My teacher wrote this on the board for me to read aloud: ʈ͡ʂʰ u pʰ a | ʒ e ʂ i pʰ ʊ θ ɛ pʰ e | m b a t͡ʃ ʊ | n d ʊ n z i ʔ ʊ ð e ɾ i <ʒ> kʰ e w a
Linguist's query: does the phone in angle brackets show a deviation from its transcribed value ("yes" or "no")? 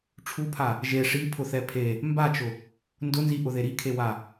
yes